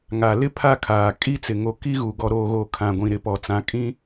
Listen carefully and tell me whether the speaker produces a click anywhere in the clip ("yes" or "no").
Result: no